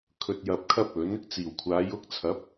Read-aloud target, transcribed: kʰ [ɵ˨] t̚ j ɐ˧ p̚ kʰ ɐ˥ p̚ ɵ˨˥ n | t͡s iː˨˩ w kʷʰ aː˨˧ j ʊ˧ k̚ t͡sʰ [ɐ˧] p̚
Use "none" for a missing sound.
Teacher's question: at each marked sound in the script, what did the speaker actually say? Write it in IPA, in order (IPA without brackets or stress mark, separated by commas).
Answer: ɵ˨, ɐ˨˥